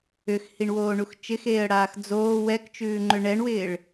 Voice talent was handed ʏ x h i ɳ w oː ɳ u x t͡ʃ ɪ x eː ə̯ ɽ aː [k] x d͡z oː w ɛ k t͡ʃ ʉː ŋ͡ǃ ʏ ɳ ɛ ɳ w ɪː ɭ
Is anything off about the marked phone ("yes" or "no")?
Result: yes